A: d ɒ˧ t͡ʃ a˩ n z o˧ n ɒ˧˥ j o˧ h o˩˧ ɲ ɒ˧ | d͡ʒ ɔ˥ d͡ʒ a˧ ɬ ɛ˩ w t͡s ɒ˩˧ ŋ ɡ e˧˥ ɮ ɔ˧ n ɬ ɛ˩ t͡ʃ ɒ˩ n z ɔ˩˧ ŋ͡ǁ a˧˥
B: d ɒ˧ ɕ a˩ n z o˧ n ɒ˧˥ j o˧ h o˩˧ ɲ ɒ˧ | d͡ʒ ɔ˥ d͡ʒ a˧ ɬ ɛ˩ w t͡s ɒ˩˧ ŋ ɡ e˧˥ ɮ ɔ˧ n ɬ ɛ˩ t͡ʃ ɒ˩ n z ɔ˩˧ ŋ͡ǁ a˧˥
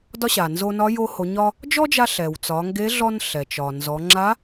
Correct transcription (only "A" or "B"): B